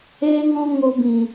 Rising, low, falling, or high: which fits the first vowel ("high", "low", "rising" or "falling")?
high